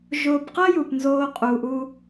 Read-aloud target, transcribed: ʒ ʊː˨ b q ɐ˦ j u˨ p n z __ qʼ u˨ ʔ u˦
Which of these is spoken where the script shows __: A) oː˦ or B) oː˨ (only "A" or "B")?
A